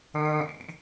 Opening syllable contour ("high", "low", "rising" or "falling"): high